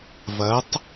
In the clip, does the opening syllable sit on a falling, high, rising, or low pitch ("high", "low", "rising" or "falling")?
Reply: rising